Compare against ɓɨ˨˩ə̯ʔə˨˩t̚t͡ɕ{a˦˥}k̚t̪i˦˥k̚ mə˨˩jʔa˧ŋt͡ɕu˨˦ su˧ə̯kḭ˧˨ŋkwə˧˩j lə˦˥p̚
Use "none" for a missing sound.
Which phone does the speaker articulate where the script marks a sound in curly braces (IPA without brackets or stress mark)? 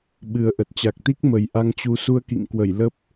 a˨˩